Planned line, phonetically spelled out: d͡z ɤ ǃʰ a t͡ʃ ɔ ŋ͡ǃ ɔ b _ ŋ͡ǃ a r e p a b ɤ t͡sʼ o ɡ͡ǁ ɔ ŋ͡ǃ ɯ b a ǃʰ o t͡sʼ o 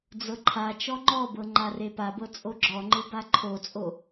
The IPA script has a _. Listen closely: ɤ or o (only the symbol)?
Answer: ɤ